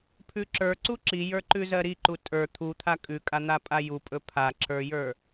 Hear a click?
yes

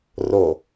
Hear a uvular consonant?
no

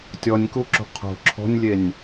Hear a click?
yes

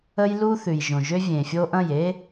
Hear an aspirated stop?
no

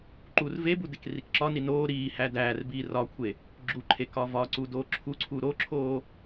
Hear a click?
yes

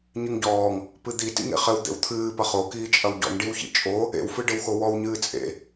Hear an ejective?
yes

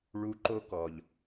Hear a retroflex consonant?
yes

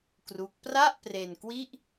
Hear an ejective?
no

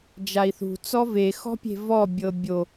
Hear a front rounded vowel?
no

